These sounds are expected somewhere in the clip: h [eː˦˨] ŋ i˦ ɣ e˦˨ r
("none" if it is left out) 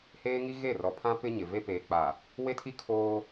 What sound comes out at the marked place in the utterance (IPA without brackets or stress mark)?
eː˦